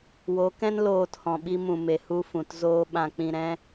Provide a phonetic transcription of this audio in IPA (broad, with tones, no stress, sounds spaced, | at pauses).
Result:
w o˨˦ k ɛ̃˦ n l oː˧ t h ɔ̃˨ ɓ i˧ m ũ˨ m e˨ h u˧ f ũ˨ t z oː˦ ɓ ã˧ k͡p ĩ˧ ɾ ɛ̃˦